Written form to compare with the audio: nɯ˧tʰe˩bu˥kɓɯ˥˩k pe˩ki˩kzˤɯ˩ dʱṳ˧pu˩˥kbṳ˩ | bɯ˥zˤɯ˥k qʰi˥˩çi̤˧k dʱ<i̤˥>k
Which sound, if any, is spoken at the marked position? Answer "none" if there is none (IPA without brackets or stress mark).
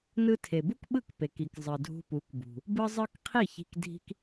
i̤˥